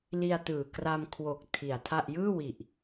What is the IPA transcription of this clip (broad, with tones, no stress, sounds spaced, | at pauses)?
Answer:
l i˧ a̯ t ɯː˨˩ k r a˧ m kʰ w o˨˩ k̚ tʰ i˨˩ a̯ tʰ a˥˩ ʔ j ɯː˥˩ w i˨˩ ʔ